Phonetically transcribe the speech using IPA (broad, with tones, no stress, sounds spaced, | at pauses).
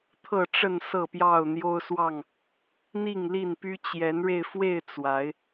t̪ʰ ɤ˥˨ ʈ͡ʂ ə˥˨ n s ɤ˥˨ p j ɑ˥˨ ʊ̯ n̪ j o˦ ʊ̯ s w ɑ˥˨ ŋ | n̪ i˥˨ ŋ l i˥˨ n p y˦ t͡ɕ j ɛ˨˦ n ɻ e˧ ɪ̯ f w e˥˨ ɪ̯ t͡s w a˨˦ ɪ̯